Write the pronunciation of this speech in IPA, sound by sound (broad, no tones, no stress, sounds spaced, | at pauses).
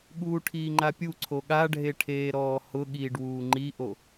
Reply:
ɠ uː ʈʰ iː ŋ͡ǃ a pʲ u ǀʰ o ɠ a ɖʱ e ʈʰ eː ɾ ɔː h ʊ ɠ iː ɖ w uː ŋ͡ǃ i ʔ o